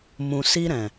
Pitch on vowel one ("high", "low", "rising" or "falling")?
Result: low